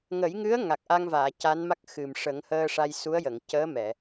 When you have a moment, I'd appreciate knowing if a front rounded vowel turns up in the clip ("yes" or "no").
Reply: no